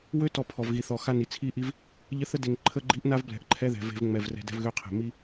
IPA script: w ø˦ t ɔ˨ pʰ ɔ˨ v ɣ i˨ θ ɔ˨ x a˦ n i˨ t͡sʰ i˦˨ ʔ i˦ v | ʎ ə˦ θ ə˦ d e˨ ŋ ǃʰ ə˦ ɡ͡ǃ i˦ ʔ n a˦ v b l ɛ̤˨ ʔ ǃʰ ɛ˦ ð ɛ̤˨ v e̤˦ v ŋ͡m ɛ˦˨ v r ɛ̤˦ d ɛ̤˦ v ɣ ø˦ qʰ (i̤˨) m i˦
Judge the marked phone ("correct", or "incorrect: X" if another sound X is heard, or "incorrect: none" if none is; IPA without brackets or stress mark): incorrect: e̤˨